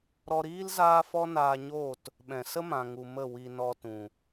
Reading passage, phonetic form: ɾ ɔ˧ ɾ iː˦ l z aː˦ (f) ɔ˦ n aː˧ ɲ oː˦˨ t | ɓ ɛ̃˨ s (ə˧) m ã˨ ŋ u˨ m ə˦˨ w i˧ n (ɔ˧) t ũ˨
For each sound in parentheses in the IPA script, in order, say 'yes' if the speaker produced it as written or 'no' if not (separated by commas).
yes, no, yes